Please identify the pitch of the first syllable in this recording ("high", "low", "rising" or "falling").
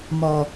low